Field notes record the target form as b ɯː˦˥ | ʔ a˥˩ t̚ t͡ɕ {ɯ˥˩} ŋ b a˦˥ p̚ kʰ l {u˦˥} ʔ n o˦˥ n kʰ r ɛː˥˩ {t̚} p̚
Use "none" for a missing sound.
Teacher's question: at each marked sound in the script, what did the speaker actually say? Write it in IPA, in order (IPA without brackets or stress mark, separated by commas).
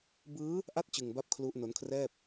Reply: ɯ˧, u˦˥, none